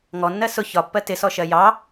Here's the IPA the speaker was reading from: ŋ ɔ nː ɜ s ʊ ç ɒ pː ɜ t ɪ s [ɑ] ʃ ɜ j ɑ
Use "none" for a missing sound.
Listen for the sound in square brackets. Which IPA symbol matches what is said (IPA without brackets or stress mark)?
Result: ɔ